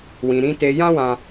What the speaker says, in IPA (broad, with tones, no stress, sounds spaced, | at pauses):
w ĩ˧ ɾ ĩ˦ t e˧ j ã˦ w ã˧